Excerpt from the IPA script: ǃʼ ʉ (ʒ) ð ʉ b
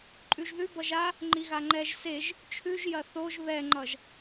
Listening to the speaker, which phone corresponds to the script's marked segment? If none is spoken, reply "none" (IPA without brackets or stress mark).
ʒ